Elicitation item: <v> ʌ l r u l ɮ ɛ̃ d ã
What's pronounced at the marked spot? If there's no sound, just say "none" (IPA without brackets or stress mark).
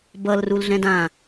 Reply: b